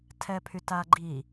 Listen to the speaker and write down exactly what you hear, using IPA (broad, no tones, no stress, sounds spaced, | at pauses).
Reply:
tʰ ɛ pʰ y t a ɡ͡ǃ i